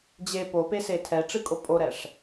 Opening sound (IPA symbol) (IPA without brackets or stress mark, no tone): d͡ʑ